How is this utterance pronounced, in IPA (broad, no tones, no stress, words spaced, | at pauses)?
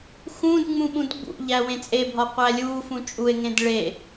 xũdŋ͡mũ ɓũdɡ͡bṵʎæ wẽt͡sʼebʱɒ qʷælʲufũ t͡ʃʼue̯ŋẽd ɭe